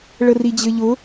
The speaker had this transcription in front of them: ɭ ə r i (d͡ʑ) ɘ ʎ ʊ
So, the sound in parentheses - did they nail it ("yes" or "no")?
yes